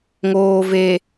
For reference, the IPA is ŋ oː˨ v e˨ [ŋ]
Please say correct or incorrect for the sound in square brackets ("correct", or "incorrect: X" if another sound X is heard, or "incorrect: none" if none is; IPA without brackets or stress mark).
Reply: incorrect: none